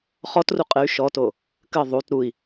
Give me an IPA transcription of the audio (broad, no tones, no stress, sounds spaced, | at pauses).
χ ɔ t r u qʼ ɘ y̯ ʃ ɔ t o | k ɘ ðˤ u t ɾ u i̯